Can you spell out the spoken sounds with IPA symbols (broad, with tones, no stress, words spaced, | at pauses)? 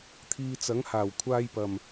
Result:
t̪ʰiː˧t͡sɐ˨˥ŋ haː˨˩wkʷʰaː˧j pɐ˨˩m